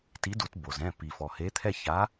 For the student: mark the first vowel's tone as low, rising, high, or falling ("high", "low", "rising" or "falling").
rising